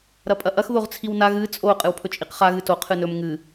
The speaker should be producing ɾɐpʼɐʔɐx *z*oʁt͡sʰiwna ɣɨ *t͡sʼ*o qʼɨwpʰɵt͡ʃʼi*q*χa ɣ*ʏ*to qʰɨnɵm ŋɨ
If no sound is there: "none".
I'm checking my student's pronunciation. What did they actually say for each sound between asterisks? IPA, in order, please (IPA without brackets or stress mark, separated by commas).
ð, t͡sʼ, q, ɨ